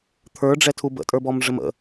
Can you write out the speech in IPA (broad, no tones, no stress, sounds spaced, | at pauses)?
t̪ʰ ə˞ ɖ͡ʐ ɛ tʰ u b ə̰ tʼ ə˞ b ɔ m ʐ ə m ə̰